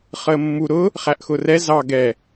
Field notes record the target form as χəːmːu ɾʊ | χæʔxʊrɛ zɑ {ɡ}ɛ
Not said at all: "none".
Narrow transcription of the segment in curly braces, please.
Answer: ɡ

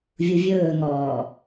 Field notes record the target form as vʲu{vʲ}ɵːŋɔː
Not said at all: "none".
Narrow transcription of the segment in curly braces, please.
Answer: vʲ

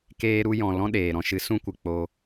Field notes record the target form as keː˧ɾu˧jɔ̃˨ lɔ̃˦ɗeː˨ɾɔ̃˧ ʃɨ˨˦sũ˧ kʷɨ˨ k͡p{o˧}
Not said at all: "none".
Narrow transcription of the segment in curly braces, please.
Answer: o˧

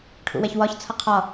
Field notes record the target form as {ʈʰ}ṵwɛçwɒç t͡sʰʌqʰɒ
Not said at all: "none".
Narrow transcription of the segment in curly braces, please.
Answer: ʈʰ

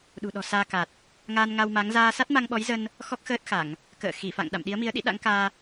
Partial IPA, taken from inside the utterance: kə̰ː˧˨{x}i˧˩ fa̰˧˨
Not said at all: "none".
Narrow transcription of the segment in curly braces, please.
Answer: x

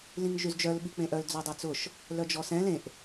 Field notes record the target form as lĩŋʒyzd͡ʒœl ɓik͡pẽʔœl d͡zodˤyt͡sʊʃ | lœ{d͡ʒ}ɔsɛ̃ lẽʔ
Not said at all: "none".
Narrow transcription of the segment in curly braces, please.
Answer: d͡ʒ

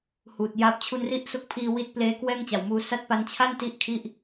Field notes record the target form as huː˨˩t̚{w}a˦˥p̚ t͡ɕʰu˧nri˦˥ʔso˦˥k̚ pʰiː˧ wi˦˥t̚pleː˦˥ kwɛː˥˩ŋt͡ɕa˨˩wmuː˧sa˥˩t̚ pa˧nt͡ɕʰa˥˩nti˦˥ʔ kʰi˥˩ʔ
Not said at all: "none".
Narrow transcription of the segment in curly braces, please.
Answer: j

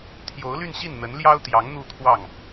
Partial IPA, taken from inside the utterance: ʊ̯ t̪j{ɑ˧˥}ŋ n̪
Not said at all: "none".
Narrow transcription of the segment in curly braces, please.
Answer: ɑ˧˥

